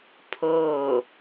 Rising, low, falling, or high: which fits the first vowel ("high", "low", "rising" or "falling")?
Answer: falling